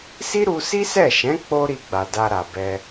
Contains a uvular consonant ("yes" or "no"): no